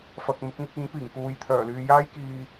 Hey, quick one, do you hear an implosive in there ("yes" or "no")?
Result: no